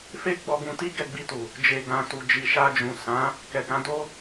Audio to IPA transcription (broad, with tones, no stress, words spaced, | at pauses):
fe˦ ɡ͡bɔ˧ɡũ˧ti˦ ɡɛ˦˨ɡ͡bi˧tu˨ | d͡ʒe˨ɡã˨ tu˨ d͡ʒi˨ʃa˧d͡ʒũ˨ sã˨˦ | kɛ˨kã˨˦do˦